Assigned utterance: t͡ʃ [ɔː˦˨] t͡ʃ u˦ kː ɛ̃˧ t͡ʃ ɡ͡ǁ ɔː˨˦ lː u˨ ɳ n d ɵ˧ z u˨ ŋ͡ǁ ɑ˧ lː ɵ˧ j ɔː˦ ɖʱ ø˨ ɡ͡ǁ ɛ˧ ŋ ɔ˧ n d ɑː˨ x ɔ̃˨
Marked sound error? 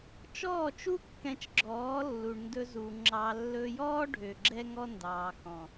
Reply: no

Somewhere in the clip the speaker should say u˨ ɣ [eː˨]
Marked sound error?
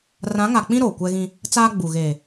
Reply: no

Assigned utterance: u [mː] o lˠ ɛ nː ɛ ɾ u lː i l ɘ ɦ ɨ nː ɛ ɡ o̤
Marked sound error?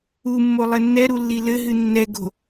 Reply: no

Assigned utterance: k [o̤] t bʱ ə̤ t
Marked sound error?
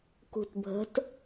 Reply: yes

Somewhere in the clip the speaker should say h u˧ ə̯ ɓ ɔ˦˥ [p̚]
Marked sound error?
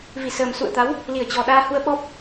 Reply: no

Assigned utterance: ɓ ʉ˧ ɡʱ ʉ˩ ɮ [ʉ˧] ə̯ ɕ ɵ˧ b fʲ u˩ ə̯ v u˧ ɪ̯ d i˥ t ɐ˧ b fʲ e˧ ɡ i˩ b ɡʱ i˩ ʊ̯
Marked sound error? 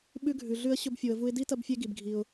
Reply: no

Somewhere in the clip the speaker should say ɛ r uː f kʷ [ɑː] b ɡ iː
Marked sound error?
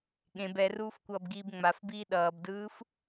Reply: yes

